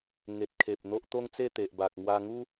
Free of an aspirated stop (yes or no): no